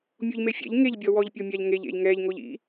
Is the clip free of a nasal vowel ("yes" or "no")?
yes